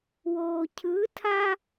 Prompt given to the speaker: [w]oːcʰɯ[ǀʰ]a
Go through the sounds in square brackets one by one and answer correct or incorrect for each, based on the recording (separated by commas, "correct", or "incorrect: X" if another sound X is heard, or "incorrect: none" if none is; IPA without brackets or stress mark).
correct, incorrect: tʰ